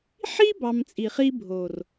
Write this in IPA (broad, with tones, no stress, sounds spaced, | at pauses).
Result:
ħ i˦ b ɑ˧ m t͡sʼ i˨ χ i˦ bʱ o˨ r